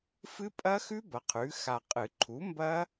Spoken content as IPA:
f ɨ˦˥ pʼ ɐ˦˥ x ʉ˦˥ b ɐ˩˥ qʰ ʉ˩˥ x a˨ qʼ ɨ˨˩˦ ǃʰ u˩˥ m b ɐ˦˥

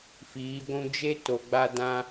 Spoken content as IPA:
f iː˨˦ ɡʷ ũ˦ d͡ʒ e˦ t o˨ ɡ͡b a˧ d ã˧

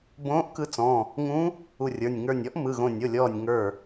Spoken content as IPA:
b õː˧˥ ʔ k ɯ˧˥ t͡s ɔ̃˩˧˩ | ŋ ũ˧˥ | u˧˩ rʲ ə˞˩˧˩ nʲ ŋ ə˞˧˩ nʲ ɔ˧˥ ʔ m ɯ˩˧˩ ɣ õ˧˩ nʲ o˩˧˩ lʲ ɔː˧˩ nʲ ŋ ə˞˧˩

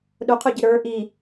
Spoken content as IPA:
ɗ ʊ qʰ ʊ ɟ ɪ ɾ ə˞ ʔ i

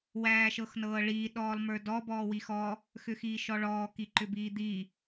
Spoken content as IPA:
w æː ʃ ɤ x n ɤː ɭ iː ɗ ɔː lˠ m ə˞ d ɔ b ɔː w i x ɔ | x ʏ x iː ʃ ɔ ɭ ɔː k i ǃ ʏ b iː d̪ i

